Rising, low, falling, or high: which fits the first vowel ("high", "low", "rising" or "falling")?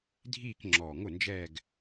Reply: falling